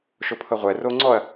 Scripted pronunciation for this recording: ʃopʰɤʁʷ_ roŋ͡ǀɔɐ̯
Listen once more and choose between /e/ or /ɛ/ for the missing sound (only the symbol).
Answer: ɛ